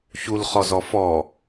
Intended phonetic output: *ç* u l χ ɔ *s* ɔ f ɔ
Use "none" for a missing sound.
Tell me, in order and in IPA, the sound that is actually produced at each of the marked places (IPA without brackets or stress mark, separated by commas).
ç, z